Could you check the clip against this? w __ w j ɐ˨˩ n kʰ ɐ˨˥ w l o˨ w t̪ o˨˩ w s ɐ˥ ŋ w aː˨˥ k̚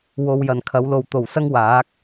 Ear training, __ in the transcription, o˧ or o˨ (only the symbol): o˨